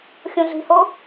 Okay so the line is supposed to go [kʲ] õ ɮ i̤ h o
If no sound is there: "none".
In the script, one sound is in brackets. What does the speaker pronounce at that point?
xʲ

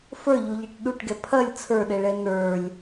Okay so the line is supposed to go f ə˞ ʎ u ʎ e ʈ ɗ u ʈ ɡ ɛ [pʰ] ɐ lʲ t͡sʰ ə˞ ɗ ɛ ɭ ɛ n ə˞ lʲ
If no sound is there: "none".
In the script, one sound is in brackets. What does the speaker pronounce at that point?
pʰ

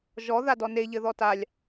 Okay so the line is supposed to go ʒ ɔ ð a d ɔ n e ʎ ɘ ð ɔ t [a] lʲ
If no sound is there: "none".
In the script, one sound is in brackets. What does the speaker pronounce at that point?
a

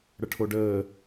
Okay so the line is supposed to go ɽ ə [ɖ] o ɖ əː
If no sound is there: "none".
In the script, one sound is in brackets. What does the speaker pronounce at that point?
ʈʰ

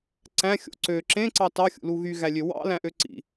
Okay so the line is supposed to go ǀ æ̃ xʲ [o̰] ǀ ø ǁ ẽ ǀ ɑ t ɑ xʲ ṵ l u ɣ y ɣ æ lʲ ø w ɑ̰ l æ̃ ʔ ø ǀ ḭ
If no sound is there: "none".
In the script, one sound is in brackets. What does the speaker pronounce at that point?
o̰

